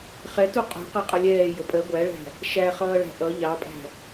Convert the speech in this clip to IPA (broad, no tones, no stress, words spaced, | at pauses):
χɛtu qʼṳ qɜqʼʌlʲɛː jəpʼɜ ɡʷæɭæ̤ | ʃæχʌː ɭæ̤ʔʌ ʎɑpʼæ̤